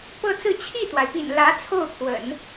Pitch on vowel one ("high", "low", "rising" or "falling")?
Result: falling